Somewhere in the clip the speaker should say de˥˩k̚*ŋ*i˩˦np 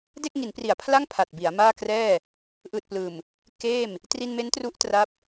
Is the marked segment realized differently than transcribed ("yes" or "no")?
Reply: no